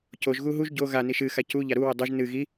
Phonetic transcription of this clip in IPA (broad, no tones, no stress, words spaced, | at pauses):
coʒɣu ɦuʒ ɟo ɣani ʃɨxa cu ʎaɾuwɨ dˤoʒ nɨ ɣi